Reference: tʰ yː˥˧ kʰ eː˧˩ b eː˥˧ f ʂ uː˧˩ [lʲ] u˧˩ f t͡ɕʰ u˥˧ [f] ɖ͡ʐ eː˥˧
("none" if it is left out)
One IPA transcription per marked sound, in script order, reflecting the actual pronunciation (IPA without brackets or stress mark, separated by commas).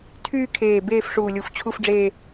lʲ, f